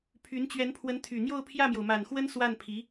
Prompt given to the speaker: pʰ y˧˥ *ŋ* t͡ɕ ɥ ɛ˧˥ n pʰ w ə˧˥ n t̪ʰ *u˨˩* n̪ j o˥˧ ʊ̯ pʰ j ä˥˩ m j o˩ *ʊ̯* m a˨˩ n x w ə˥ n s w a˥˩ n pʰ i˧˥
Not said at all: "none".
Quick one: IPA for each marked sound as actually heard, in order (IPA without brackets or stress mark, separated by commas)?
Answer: n, y˨˩, ʊ̯